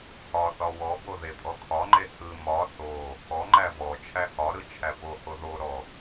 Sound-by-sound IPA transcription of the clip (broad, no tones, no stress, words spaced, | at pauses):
hɒθɒ wɔbo ðepʼɔkʰɒŋ͡ǃe hɯ mɒ θo | ɔŋ͡ǃæ vɔ t͡ʃʰæhɒɾɯ t͡ʃʰæpoho ðoɾɔ